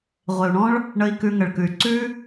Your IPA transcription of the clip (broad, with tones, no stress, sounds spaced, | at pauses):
ʁʷ e˨ u̯ ɳ ɔ̃˦ ɭ | ɳ ə˧ i̯ k ʉ˧ ŋ ə˨ ɭ k ʉ˨ y̯ ǀ ʉ˦